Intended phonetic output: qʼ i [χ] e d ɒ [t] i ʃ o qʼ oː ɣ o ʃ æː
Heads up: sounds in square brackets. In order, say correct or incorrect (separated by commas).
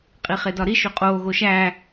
correct, incorrect